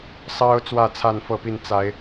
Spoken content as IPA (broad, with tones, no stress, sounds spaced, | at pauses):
s ɑ˦ ʊ̯ t͡s w ä˥˨ t͡sʰ a˥˨ n f ɤ˥˨ p i˥˨ n t͡s a˨˦ ɪ̯